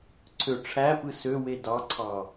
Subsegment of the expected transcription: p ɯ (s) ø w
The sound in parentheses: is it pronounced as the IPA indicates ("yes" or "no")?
yes